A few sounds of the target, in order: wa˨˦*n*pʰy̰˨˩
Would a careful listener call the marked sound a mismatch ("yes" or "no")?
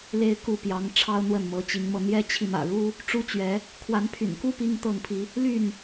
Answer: no